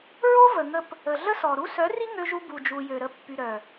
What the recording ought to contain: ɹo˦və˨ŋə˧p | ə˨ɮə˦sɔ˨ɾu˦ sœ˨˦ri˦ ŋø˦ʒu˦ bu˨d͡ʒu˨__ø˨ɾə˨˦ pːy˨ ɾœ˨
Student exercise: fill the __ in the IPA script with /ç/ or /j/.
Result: j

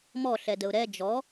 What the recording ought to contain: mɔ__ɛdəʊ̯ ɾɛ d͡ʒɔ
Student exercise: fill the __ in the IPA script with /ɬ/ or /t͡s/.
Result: ɬ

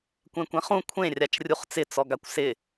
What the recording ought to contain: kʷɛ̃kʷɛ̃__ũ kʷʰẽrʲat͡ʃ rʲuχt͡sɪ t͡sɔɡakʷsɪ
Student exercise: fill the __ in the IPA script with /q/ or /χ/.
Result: χ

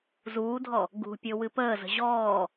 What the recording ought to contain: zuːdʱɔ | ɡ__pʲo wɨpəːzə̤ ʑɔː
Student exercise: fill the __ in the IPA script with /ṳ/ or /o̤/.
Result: ṳ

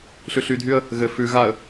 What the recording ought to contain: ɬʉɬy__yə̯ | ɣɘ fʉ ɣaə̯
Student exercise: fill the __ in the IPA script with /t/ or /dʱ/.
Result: dʱ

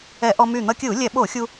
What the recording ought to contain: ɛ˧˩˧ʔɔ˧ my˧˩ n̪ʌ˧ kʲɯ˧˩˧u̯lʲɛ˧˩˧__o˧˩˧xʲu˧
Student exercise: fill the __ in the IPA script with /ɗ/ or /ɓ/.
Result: ɓ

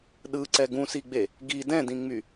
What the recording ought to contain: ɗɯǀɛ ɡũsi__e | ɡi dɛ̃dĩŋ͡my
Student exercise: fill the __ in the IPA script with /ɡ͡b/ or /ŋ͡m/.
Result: ɡ͡b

